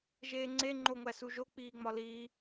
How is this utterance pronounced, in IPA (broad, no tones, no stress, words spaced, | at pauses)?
ʒeːŋ͡ǀe ŋ͡ǃoŋʷæsuʒo k͡piːŋ͡mɒliː